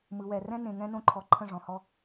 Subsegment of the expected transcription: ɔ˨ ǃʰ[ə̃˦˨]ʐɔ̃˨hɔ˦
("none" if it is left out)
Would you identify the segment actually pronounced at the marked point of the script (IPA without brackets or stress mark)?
ə̃˦˨